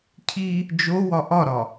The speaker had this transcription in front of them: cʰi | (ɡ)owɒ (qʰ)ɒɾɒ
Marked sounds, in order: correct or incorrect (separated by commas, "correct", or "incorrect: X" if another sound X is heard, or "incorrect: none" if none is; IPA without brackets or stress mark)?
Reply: incorrect: d͡ʒ, incorrect: ʔ